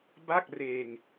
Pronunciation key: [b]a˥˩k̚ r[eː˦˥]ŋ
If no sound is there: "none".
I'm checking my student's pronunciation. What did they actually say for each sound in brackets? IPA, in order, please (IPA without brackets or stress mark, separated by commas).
b, eː˧